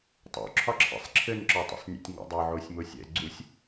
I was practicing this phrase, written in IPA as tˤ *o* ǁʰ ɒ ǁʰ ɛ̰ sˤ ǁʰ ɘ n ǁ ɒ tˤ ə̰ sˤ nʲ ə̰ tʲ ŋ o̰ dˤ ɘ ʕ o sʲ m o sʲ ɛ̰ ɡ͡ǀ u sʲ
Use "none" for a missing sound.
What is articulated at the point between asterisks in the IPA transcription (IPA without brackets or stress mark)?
o̰